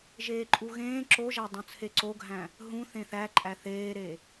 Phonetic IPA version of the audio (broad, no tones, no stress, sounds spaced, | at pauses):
ʒ eː ǃʼ u ɣ ẽː ǁ o ʒ æ dˤ ũ t͡sʰ e ǀ o ɡʱ æ̃ | ɦ ũ θ ẽ θ æ ǃʼ æ θ eː ɾ e